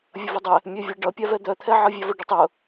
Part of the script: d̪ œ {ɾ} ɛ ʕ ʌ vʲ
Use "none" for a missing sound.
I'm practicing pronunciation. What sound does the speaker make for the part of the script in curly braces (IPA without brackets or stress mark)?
t̪ʰ